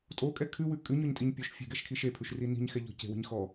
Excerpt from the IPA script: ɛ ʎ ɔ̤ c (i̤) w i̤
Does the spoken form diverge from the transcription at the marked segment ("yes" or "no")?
yes